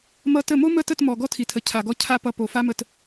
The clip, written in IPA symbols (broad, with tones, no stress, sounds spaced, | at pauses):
m ʌ˧ t ə˦˨ m o˦ m ə˦˨ t ə˦˨ t m ɔ˨ ɡ ɔ˦ tʰ i˨ tʰ ə˨ cʰ a˨ ɡ ɔ˧ cʰ a˦ p ʌ˦ p o˨ f a˦ m ə˦˨ t